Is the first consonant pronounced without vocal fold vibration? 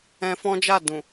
yes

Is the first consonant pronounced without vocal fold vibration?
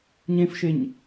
no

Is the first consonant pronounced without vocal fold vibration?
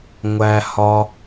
no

